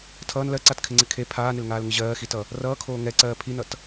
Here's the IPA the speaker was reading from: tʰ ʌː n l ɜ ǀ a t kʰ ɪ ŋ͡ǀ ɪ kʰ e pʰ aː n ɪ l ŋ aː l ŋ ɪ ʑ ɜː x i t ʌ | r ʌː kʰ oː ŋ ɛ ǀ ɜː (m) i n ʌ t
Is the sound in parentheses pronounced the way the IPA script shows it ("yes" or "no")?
no